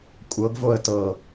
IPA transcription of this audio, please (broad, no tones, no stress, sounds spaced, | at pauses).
kʷʼ ɤ ɡ v o ə̯ t ɤ